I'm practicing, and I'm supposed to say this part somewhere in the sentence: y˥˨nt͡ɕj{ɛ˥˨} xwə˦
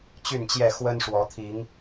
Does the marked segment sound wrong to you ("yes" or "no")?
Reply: no